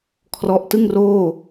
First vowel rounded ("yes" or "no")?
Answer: yes